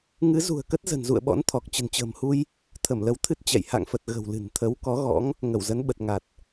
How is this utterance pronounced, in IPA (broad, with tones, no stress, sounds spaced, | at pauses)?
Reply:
ŋ ɨ˨˦ z ṳ˨˩ ə̯ k ə˦˥ t̚ z ə̤˨˩ n z ṵ˧˨ ə̯ ɓ ɔ̰˧˥ n t̪ʰ ɔ˨˩ k̚ t͡ɕ ə̤˨˩ n t͡ɕ ə̤ː˨˩ m h u˧ j | t̪ʰ ə˧˩ m l ə˨˦ w t̪ʰ ɨ˦˥ t̚ t͡ɕ ɛ̰˧˨ j h a̰˧˨ ŋ f ə˨˩ t̚ ɣ ə̤˨˩ w l ɨ̤˨˩ n t̪ʰ ə˨˦ w k ɔ˨˦ ɣ ɔ̰˧˥ ŋ | ŋ ə˧˩ w z ə˨˦ n ɓ ə˨˩ t̚ ŋ a˨˩ t̚